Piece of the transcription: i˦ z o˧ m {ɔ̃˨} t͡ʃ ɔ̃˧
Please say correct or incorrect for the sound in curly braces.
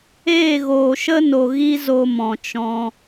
correct